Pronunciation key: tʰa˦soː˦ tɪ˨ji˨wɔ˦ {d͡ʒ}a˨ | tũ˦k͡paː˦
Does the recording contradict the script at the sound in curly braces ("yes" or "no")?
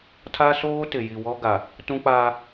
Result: yes